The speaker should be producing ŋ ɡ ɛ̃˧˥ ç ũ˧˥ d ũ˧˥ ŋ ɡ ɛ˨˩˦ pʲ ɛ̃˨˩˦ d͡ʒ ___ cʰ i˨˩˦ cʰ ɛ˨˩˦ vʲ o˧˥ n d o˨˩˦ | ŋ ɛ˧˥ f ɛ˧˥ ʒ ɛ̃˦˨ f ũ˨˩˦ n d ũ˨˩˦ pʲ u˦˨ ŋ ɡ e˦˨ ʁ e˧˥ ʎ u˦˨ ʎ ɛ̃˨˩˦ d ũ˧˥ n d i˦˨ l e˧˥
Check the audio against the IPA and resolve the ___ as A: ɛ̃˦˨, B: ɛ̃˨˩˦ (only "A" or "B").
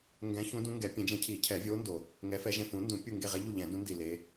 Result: B